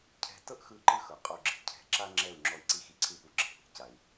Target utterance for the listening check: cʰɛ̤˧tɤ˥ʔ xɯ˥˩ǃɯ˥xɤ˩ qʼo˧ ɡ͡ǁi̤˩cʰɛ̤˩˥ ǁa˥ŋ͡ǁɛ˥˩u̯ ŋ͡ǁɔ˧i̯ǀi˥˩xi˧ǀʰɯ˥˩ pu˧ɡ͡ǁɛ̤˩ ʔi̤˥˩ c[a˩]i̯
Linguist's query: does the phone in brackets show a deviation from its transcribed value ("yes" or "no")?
no